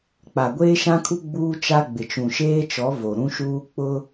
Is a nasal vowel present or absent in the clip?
present